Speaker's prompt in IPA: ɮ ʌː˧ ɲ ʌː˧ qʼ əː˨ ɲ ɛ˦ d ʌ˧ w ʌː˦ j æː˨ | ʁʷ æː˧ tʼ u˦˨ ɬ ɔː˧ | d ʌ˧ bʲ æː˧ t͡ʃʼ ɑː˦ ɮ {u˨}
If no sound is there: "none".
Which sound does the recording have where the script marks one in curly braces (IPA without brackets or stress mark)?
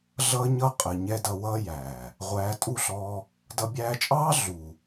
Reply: u˨